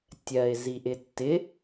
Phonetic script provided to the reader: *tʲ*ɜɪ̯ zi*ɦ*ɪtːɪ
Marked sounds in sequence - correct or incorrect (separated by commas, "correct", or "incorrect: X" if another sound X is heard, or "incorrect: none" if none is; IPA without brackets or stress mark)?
correct, incorrect: ʔ